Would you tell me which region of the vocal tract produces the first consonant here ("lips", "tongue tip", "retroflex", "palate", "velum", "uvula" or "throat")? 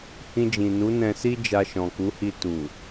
throat